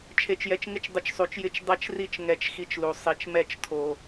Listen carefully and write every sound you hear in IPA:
t͡ʃʰ e˧ t͡ʃ j ɛ˧ t͡ʃ ŋ ɪ˦ t͡ʃ dˤ ɪ˧ t͡ʃ sˤ u˨ t͡ʃ j ɪ˦ t͡ʃ dˤ ɛ˦ t͡ʃ r i˦ t͡ʃ ŋ ɛ˧ t͡ʃ x i˧ t͡ʃ l u˨ sˤ i˨ t͡ʃ m ɛ˦˨ t͡ʃ tʰ o˧

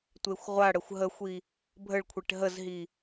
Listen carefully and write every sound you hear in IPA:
tʷ e xʷ ʁʷ a ɽ ə xʷ ɦ ə xʷ i | bʱ ə ɭ kʷʰ e ʈ ɦ ə z ɦ i

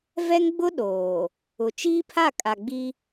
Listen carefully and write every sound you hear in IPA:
v ɛ˦ ŋ ɡ͡b ʊ˦ ɗ oː˨ | ʊ˨ t͡ʃ iː˦ pʰ a˦˨ kʼ a˨ ɡ͡b i˦

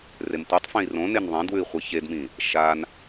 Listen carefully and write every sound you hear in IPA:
r e m tʷ ɨ tˤ f ẽ i̯ r õ n e n ðˤ ẽ d w ʉ i̯ χʷ i ç e d m ĩ | ʃ a n

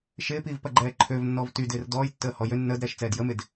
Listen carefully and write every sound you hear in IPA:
ʃ ɪː p iː v p ɐ ɡ͡ǃ ɛː ǃʰ ø v nː ɔ v t y d ɪː r d ɔː j tː əː h ɔ j ø nː əː d ɾ ɛː ʃ t͡s ɛː d j ə m ɪ d

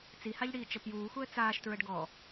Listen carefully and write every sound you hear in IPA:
t͡s i h a ʎ ɽ iː t͡ʃ ə p j uː x u ə̯ t͡s aː ʃ t ɹ ə ɖ ɡ ɔ

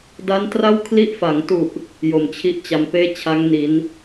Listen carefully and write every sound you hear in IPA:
d a˦˥ n t r a˥˩ w kʰ l i˦˥ ʔ f a˩˦ ŋ t u˨˩ ʔ | j o˨˩ m t͡ɕʰ i˥˩ ʔ t͡ɕ a˧ m p eː˥˩ t͡ɕʰ a˦˥ ŋ n i˩˦ n

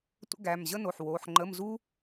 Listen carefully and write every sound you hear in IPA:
tʷ ə̰˥ ɡ æ˩˧˩ m ʑ ə˥ n o˩˧˩ ħ w o˩˧˩ ħ ŋ͡ǃ ə˧˥˧ m z u˥

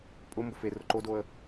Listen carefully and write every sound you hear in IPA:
pʼ ʊ m b ʊ f e r ʊ ǃ o d o ə̯

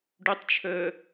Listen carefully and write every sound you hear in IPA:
ɖ ʉ tˤ t͡ʃʰ əː

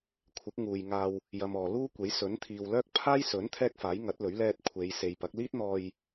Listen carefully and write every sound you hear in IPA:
kʷʰ ɪ˨˥ k̚ ŋ uː˨ j ŋ aː˧ w | j ɐ˨ m ɔː˨ l uː˥ kʷ e˨˥ j s ɵ˨˥ n t̪ʰ iː˨ w l œː˥ k̚ pʰ aː˥ j s ɵ˨˥ n t̪ʰ ɛː˥ k̚ f aː˨˥ j ŋ ɐ˨˥ t̚ l ɵ˨˥ ɥ l ɛː˧ t̚ kʷʰ e˨˧ j s e˨ j p ɐ˨˥ k̚ l iː˥ t̚ n̪ ɔː˧ j

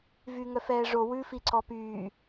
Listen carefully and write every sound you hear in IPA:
v yː ŋ œ f ɛː ʐ o w ʉ f i ǀ ɔ p yː

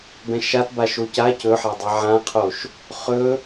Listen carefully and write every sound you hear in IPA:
b ɛ̃ ʃ a t b a ʃ o c a c ɵ ħ a dˤ a ʕ ã qʰ o ʃ | χ ɵ

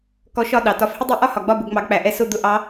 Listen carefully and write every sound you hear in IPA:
k ɔ˨˥ ʃ ɒ˦˨ ɗ ɑ˩ t ɒ˨˥ f h ɪ˥ dˤ i˦˨ ʔ ɒ˥ h ɒ˩ ɡ͡b ɒ˦˨ b ʊ˦˨ ɡ ŋ͡m ɑ˨˥ ɡ k͡p æ˩ ʔ ɛ˦˨ s ʊ˦˨ d̪ ʊ˦˨ ʔ ɑ˨˥

